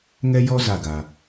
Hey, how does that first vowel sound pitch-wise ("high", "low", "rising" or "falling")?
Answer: high